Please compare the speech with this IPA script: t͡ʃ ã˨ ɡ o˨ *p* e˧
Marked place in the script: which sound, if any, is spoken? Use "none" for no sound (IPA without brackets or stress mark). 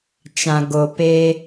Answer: p